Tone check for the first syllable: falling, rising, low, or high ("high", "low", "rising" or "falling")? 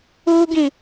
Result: high